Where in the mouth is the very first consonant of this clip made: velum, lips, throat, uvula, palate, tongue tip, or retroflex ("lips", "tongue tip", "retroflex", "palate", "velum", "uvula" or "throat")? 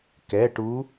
velum